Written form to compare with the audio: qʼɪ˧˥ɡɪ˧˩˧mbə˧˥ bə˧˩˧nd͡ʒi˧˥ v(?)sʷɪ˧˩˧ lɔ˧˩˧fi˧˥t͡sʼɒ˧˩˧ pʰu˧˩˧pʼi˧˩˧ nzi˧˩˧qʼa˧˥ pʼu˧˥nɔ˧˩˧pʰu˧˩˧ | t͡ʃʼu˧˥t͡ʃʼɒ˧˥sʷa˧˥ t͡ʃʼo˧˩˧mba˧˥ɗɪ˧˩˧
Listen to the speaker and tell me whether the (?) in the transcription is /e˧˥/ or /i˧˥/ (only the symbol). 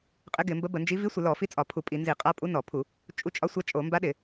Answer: i˧˥